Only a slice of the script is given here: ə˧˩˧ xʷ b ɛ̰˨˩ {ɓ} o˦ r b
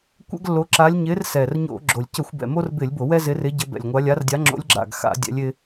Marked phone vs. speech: incorrect: m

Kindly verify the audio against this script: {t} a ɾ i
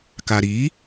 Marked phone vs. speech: incorrect: k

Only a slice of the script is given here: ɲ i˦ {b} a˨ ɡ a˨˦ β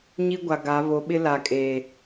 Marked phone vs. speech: incorrect: ɡʷ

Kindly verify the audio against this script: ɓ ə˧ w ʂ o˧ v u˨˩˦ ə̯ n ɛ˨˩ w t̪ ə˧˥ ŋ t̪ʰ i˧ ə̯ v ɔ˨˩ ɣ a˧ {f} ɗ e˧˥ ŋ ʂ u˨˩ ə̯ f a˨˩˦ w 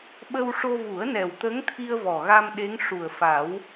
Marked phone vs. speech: incorrect: m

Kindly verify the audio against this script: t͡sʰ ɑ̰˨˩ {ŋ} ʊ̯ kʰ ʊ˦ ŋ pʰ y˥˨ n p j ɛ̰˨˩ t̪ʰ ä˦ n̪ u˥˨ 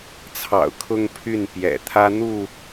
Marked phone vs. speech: incorrect: none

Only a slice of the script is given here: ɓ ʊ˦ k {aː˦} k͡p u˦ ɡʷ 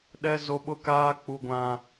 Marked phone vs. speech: correct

